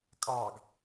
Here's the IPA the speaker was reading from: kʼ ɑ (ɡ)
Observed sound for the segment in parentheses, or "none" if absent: ɡ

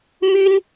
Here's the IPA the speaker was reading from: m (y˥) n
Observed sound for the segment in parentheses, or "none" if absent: y˥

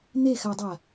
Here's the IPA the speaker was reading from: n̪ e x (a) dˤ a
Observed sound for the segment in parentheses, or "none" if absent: a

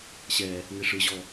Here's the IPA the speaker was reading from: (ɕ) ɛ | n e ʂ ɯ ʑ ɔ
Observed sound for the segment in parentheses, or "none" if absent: ɕ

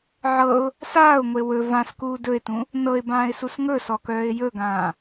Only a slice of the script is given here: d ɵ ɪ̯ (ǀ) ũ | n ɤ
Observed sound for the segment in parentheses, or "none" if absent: t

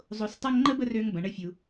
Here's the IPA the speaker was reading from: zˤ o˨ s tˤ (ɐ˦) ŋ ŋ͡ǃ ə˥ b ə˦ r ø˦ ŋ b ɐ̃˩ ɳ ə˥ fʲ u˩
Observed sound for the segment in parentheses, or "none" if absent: ɐ˦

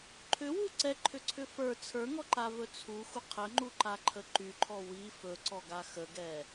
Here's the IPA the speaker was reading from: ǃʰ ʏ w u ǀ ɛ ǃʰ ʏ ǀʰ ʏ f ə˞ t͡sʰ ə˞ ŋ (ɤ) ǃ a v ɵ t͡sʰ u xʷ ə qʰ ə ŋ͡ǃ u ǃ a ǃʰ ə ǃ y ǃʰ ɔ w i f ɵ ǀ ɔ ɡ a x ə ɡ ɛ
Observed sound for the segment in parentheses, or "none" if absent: ɔ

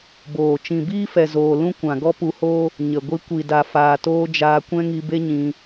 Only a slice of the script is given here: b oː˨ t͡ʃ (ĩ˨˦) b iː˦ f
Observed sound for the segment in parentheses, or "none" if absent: ĩ˨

